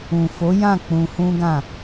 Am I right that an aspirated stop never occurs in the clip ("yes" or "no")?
yes